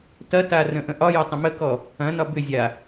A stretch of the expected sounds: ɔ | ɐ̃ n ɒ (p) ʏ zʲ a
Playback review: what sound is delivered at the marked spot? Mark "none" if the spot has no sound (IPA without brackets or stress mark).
b